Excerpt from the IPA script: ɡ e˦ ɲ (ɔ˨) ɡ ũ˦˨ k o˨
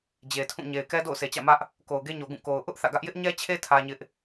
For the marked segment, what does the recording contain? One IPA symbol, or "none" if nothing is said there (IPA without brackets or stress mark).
o˨